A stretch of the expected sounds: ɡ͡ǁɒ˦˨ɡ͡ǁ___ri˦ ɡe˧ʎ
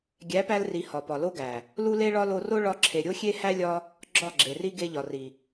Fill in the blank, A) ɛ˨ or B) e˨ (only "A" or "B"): B